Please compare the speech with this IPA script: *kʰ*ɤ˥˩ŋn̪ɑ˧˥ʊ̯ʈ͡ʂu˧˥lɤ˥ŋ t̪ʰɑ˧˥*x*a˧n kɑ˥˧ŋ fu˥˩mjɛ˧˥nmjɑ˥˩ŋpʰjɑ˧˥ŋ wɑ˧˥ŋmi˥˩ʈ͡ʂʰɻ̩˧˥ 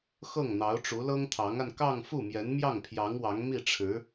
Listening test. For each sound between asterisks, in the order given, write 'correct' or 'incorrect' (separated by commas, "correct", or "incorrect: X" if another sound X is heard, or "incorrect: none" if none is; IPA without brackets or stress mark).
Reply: incorrect: x, incorrect: ŋ